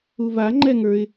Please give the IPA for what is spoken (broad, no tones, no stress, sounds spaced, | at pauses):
u v a ŋ͡ǃ ɛ ŋ ə˞ ɪ̯